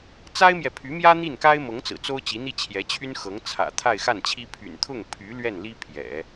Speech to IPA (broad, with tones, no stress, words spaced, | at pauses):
t͡sa˥ɪ̯mjɛ˨pʰy˧˥mjä˥ n̪i˥˩nka˥ɪ̯mɤ˧˥ŋ t͡sɹ̩˨˩t͡so˥ʊ̯ t͡ɕi˧˥n̪i˥˩t͡ɕʰjɛ˧˥t͡ɕʰy˥n xɤ˧˥ŋt͡sʰä̰˨˩ t̪ʰa˥˧ɪ̯xa˥˩nt͡ɕʰi˥ pʰy̰˨˩nt̪ʰʊ˥˩ŋpʰy˧˥ lɥɛ˥˩nli˥ pʰjɛ̰˨˩˦